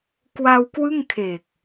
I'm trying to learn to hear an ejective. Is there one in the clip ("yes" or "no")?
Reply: no